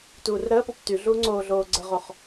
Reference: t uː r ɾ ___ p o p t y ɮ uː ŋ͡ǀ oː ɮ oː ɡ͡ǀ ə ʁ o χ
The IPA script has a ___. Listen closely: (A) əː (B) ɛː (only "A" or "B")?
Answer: A